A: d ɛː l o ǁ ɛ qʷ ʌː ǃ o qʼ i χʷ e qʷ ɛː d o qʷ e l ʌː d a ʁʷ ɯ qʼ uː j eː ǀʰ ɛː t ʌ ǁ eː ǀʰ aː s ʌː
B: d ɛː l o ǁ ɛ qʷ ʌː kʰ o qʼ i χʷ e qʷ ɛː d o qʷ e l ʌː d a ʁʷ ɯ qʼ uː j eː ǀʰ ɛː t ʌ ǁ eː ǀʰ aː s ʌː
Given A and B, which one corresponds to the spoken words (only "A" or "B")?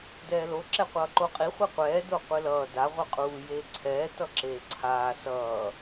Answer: A